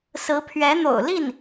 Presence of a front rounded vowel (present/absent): absent